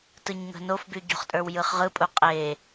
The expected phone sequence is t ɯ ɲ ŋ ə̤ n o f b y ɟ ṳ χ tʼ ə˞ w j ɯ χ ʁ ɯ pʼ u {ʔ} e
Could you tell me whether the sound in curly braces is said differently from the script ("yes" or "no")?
yes